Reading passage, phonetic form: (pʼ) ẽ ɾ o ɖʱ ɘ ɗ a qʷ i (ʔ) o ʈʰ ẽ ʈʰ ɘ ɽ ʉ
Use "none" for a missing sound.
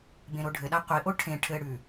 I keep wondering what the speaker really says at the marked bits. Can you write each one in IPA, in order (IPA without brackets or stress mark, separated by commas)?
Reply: b, ʔ